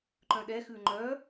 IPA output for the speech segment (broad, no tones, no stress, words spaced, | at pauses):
ǃœ̃ɗɛ xʉŋ͡ǃœ